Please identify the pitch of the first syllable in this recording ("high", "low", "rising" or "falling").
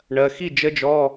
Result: low